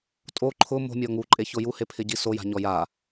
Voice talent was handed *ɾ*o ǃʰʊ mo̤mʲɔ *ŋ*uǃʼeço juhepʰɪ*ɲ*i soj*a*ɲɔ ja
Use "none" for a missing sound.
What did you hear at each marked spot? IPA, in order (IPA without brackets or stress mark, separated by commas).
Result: tʼ, ŋ, ɟ, a̤